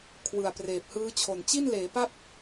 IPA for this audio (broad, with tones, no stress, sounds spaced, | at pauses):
kʰ w ɯ˨˩ a̯ p r eː˨˩ p̚ h ɯː˦˥ t͡ɕʰ o˨˩ n t͡ɕ i˥˩ n l eː˩˦ p a˥˩ p̚